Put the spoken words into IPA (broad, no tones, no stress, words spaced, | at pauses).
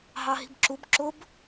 ɦɑɦi̤bǁub ǁʊb